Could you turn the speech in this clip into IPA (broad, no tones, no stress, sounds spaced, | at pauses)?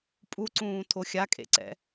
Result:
pʼ u ǀ ũː tʰ o xʲ a kʼ ḛ ǀ ɛ̰